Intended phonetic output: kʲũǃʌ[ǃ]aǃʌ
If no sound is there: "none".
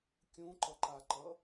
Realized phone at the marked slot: ǃ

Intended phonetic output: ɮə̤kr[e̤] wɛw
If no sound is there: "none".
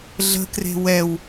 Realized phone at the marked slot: e̤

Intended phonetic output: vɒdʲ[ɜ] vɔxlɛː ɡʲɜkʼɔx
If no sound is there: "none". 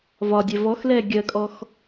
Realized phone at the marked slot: ɛ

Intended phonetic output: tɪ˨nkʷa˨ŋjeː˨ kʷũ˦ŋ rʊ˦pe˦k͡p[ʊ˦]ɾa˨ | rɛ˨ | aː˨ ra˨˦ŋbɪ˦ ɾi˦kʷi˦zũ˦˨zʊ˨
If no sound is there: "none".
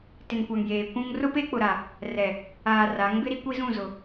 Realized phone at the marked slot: ʊ˨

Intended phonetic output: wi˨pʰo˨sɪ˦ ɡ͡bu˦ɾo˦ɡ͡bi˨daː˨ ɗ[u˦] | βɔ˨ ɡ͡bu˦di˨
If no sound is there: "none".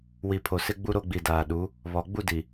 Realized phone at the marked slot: u˨˦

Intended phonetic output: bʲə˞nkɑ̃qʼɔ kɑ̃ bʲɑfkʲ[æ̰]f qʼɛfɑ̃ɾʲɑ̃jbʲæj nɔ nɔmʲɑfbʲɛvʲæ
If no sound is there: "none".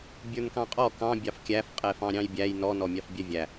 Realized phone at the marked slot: æ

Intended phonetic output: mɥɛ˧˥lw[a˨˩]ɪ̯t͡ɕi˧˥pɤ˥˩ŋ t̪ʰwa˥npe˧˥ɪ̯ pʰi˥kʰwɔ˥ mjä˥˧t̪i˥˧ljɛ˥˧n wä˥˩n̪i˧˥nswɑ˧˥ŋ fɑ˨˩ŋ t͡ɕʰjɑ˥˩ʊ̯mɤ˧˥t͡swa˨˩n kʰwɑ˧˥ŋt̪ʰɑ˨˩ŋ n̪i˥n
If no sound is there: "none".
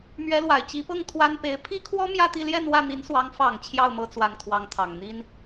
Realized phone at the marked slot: a˨˩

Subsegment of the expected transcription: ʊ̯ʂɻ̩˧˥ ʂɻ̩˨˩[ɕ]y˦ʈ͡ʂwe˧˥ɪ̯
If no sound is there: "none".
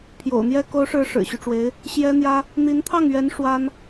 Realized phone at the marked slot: ɕ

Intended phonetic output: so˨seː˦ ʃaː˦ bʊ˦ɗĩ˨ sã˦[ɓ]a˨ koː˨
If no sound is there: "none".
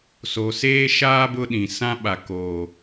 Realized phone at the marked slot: ɓ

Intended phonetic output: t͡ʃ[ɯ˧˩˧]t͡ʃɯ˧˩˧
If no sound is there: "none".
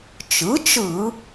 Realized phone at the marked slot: ɯ˩˥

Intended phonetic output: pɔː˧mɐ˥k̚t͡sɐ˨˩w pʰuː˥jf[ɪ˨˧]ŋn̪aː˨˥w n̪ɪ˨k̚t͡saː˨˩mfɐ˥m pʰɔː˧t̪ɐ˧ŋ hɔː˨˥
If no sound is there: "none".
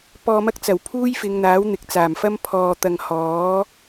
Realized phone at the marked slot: ɪ˨˧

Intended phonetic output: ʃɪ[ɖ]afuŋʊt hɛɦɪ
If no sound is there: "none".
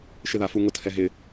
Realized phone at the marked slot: ð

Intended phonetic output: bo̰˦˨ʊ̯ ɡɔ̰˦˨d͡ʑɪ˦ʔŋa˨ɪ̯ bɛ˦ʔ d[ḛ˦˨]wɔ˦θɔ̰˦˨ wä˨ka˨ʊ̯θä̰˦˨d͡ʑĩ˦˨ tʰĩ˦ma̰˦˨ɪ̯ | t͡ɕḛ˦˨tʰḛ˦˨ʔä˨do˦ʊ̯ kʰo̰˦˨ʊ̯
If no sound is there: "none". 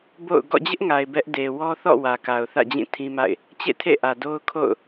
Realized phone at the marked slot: e˨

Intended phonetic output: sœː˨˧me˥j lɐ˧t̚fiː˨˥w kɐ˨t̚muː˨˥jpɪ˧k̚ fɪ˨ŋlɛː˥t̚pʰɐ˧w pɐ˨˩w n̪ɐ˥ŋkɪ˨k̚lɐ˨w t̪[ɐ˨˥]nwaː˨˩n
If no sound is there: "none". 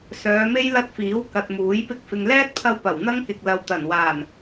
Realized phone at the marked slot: ɐ˨˩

